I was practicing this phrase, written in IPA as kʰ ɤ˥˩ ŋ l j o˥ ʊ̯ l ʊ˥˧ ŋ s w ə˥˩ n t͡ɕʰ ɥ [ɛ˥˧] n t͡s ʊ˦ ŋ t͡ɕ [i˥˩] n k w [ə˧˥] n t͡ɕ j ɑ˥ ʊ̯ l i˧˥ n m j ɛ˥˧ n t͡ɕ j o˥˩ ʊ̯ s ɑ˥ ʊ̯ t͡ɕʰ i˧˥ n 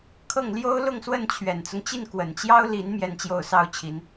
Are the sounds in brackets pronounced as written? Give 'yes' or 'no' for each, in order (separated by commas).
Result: no, yes, no